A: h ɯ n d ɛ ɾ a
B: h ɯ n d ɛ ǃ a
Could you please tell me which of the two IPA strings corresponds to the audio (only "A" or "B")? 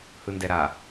A